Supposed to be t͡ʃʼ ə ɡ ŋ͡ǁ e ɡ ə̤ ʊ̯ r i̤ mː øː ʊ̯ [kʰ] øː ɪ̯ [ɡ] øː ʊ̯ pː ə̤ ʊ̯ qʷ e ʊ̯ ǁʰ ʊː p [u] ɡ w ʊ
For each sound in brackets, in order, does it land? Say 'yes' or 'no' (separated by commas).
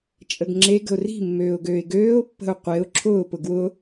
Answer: no, yes, no